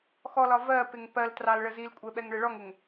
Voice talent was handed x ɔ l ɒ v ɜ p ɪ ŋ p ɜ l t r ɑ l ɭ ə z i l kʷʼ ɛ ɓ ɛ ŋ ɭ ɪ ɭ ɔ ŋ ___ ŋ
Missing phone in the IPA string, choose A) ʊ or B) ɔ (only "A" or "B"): A